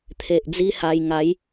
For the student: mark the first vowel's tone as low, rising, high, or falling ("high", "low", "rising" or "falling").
low